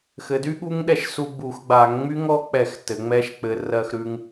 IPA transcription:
x ɘ˩˧ d y˦˥ ɠ u˦˥ ŋ ɗ ɛ˧ ʃ s u˧ ɡ͡b u˧˩˧ x ɡ͡b a˧˩˧ ŋ ŋ͡m y˦˥ ŋ ɔ˦˥ k͡p ɛ˧˩˧ x t ɘ˩˧ ŋ͡m ɛ˦˥ ʃ k͡p ɘ˧ r ɜ˧ x ɾ ʉ˧ ŋ

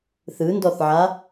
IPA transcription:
θ ɯ n d ɔ θ ʕ a

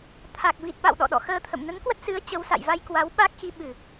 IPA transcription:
t̪ʰ a˨˩ k̚ v i˨˩ t̚ ɓ a̰˧˨ w ɗ ɔ̰˧˨ ɗ ɔ̰˧˨ x əː˧ t̪ʰ ə̰˧˨ m n ə˨˦ n k w ə˦˥ t̚ s ɨ˨˦ ə̯ t͡ɕ ə˨˦ w s a̰˧˨ j v a˧ j k w a˨˦ w ɓ a˦˥ k̚ x i˧ ɓ ɨ˧˩˨

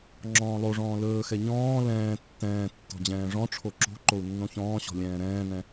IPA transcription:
ŋ͡ǁ ɔ̃ː lˠ o ʐ ɔ̃ː l ɵː x ɛ ɲ ɔ̃ː l ɛ̃ː tː ɛ̃ː tː ɔ̤ d͡ʑ ɛ̃ː ʐ ɔ̃ ʈ͡ʂʰ o ǁ o̤ ǃ o u̯ nː õ ç ɔ̃ː ɕ ɔ̤ lʲ ɛ̃ː ɾ ɛ̃ː n ɛ̃

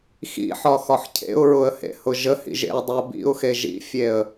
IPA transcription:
x ḭ ħ ɒ x ɒ ħ cʰ ḛ ʊ̯ ɹ ʊ ə̯ h ḛ h ʊ ʒ ə h ḭ ʒ ḛ ʊ̯ dˤ i ʊ̯ b ḭ ʊ̯ x e ʒ ḭ fʲ e ə̯

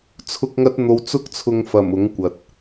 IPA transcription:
t͡sʰ ʊ˧ k̚ ŋ ɐ˧ t̚ n̪ o˨˧ w t͡s ʊ˧ k̚ t͡sʰ ʊ˨ ŋ f ɐ˨˩ m ʊ˨˥ ŋ kʷ ɐ˨ t̚

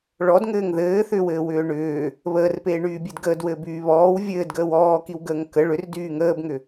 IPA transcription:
ɭ ɔ d ŋ ɘː ŋ ð ɘː θ ʏ w ɘː w ʏː ɳ ʏː | β əː r p eː ɳ yː bʲ e d ɡ əː d w ɘː b yː β ɔː w vʲ ɘː d ɡ əː w ɔː k i w ɡ əː ŋ k ə ɭ ʏ r d yː ŋ əː b ŋ ʏ

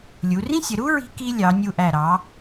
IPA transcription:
lʲ u˩˧ r ĩ˥ sʲ ə˩˧ ɾ u˥ ɹ i̤˧ k i˧ lʲ ɑ˩˧ nʲ u˧˩ ʔ æ˧˩ ɾ ɑ˩˧

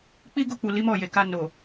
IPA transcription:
k͡p i˦ ɡ o˦˨ k͡p u˨ l i˨˦ m ɔ˦˨ j e˨ k a˧ n o˨

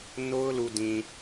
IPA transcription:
n o˦ ʊ̯ l u˨ d ĩ˨

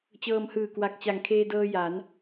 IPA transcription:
t͡ɕ ɤː˧ m h ɯː˨˩ k w a˨˩ k̚ t͡ɕ a˨˩ ŋ kʰ eː˧ d ɤː˧ j a˩˦ n

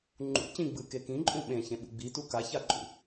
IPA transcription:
ŋ͡ǃ ṵ c ĩ ɡ͡b ɯ k e k ĩ ǃʼ ũ ɓ ẽ ç ẽ ɓ ṵ ɡ͡b i t u k a ç a ǃʼ ṵ

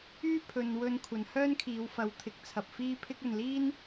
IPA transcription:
yː˥ pʰ ɵ˨ n w ɵ˧ n kʷʰ ɐ˨˧ n h œː˥ n kʰ iː˨˧ w f ɐ˨˧ w t̪ʰ ɪ˨˥ k̚ t͡sʰ ɐ˨ p̚ f iː˥ pʰ ɪ˥ k̚ ɵ˨ n l iː˥ n

